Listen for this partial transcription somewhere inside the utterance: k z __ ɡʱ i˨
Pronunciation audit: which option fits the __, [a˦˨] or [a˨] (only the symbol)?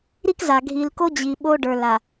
a˨